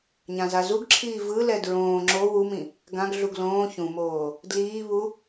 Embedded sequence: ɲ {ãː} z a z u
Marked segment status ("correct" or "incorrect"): incorrect